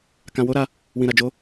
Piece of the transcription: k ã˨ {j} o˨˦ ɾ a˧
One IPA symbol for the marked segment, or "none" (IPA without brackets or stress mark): w